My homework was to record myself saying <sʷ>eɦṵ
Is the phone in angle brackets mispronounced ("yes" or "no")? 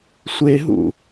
no